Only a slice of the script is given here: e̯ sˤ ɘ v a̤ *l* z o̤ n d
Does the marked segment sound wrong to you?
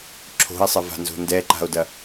yes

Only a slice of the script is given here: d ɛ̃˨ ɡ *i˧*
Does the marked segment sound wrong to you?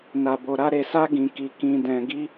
no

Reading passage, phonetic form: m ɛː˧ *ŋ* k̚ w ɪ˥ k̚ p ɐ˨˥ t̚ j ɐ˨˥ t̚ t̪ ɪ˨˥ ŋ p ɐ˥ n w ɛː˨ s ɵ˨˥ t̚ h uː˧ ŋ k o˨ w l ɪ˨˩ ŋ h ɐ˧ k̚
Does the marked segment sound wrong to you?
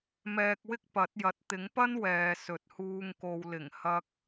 yes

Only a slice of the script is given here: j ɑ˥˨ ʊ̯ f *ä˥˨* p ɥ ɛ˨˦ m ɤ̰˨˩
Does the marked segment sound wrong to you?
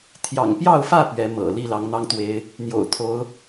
no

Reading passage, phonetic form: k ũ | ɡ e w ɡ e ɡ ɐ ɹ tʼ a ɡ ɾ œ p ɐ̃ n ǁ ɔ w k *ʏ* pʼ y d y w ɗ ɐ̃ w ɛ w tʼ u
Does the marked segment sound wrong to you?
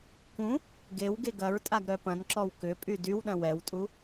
no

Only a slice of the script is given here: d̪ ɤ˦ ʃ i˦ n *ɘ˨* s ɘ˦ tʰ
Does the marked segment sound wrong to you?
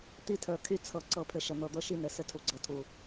no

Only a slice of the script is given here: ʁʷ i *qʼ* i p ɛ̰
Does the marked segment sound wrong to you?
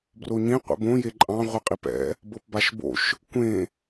no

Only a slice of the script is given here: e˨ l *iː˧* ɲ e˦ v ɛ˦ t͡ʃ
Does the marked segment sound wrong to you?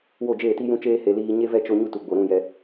no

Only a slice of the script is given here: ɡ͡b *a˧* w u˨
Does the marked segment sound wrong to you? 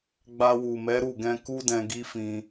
no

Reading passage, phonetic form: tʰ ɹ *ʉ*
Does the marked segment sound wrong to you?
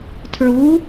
yes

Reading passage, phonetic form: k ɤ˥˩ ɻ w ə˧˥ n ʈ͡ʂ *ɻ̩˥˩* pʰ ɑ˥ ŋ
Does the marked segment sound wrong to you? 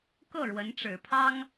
yes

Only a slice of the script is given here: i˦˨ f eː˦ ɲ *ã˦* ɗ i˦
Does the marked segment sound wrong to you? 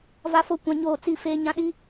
no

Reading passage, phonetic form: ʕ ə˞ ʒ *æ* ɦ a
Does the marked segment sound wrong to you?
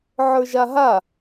yes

